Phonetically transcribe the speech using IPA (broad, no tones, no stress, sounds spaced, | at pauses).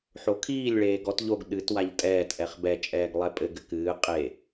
ħ o kʰ iː lʲ ɭ eː ɡ ɔ t ʎ o ɡ ɗ ɨ t w a ʎ tʼ ɛː t ʔ ɛ χ b ɛ t͡ʃʼ ɛː ɡ lˠ ɛ pʼ ɘ ɡ ɘ k ɨː qʼ e